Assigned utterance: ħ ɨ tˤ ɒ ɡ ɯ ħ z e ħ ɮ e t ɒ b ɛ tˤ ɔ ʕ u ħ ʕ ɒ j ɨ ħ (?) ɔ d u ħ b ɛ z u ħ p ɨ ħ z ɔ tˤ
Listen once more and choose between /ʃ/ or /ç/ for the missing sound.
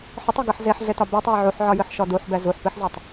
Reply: ʃ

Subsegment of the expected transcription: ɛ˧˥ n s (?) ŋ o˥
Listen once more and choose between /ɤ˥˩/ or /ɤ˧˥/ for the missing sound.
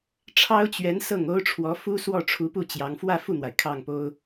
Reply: ɤ˥˩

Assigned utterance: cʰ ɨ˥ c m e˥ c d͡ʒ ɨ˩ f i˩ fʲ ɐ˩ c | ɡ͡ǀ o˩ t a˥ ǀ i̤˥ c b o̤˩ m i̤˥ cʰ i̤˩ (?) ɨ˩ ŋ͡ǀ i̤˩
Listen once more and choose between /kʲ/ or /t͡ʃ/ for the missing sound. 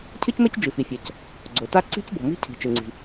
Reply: t͡ʃ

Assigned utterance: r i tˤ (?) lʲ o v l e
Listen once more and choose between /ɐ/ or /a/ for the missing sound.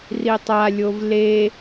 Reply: a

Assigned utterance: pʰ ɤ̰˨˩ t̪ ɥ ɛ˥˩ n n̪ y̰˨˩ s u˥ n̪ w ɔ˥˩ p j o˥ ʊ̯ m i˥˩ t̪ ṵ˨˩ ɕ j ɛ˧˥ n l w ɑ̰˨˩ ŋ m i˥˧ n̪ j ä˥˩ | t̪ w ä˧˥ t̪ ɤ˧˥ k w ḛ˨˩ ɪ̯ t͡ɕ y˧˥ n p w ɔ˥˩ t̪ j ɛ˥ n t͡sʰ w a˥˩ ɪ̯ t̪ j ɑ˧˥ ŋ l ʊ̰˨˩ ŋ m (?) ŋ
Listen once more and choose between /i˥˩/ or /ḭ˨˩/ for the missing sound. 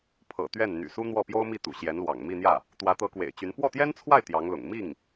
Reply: i˥˩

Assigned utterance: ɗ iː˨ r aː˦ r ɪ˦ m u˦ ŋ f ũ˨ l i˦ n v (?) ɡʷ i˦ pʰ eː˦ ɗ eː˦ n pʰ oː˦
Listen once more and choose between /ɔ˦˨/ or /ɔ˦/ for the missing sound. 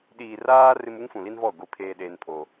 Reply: ɔ˦˨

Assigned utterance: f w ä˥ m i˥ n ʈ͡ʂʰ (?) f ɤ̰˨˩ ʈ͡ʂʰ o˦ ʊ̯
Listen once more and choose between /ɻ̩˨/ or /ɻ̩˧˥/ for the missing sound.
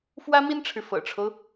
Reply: ɻ̩˨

